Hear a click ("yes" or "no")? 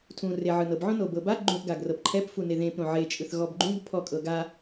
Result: yes